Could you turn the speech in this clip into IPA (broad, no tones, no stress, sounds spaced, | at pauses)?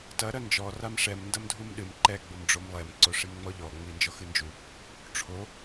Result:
t ɐ ɾ ɐ n d͡ʒ ɔ r a m ʂ ɛ m n d ɐ m dʱ u m ɗ ɨ m ǃ ɛ ɡ͡b u m ɖ͡ʐ o m lˠ ɛ m ǀ o ʂ i m ŋ͡m ɔ ʎ ɔ ŋ͡m i n d͡ʒ ɔ x ɨ n d͡ʒ u | ʈ͡ʂʰ o